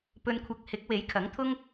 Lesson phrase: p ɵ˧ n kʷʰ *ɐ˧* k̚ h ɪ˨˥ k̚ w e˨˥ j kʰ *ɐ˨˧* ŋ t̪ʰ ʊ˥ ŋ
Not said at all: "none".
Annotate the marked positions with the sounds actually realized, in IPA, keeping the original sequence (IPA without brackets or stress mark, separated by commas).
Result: ɐ˧, ɐ˨˥